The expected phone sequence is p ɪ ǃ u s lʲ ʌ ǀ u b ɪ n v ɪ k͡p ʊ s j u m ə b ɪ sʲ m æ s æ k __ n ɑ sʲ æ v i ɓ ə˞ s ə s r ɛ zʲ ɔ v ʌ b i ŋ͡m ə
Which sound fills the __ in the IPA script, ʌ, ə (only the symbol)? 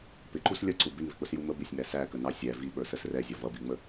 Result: ə